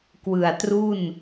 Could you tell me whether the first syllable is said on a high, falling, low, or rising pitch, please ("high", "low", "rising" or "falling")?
low